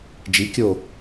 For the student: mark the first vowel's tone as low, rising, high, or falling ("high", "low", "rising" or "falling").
rising